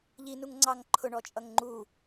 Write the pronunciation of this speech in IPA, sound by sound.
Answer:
ʎ i n u ŋ ŋ͡ǀ ɑ ŋ ǃʰ ʊ ɳ ɔ t͡ʃʼ ʌ ŋ ŋ͡ǃ u

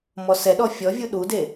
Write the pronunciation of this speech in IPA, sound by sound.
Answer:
m ɔ s ɛ ɗ ɔ fʲ ɔ vʲ u ɗ u d e

